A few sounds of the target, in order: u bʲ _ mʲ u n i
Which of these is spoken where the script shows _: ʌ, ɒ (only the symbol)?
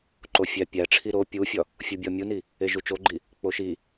ɒ